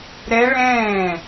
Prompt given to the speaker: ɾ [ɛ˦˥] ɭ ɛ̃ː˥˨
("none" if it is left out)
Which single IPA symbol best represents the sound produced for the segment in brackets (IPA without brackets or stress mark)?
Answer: ɛ˦˥